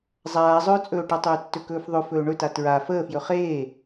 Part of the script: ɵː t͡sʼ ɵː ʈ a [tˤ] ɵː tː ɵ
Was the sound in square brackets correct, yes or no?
yes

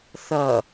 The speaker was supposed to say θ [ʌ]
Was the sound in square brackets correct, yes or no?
yes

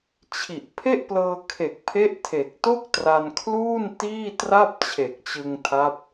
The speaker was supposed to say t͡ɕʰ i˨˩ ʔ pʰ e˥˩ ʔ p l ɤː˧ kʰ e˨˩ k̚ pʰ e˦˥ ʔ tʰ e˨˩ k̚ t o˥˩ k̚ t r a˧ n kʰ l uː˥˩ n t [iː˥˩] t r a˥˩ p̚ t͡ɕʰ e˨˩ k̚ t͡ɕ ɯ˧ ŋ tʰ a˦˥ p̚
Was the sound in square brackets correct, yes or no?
yes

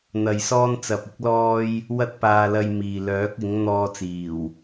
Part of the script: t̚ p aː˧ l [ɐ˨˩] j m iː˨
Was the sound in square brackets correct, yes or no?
no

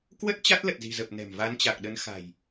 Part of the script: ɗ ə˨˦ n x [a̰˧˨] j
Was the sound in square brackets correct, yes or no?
no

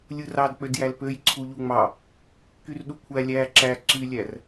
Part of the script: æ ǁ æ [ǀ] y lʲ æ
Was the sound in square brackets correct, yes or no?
yes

